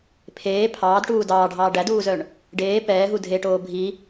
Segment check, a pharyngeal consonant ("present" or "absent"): absent